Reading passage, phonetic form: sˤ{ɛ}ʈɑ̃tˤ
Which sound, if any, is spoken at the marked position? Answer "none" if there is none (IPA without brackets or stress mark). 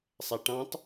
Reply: æ